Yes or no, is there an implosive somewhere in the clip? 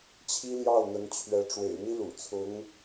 no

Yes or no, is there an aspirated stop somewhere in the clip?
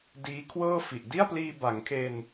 yes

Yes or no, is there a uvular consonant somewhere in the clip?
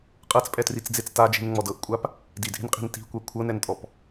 yes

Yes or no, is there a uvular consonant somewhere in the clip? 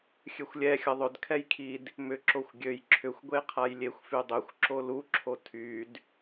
yes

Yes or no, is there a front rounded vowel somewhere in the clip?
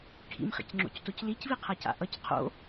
no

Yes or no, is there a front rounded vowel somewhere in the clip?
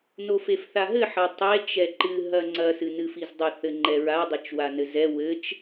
no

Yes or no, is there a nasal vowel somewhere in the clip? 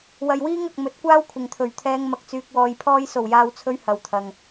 no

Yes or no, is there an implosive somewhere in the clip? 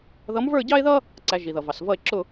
no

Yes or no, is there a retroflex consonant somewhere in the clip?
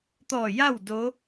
no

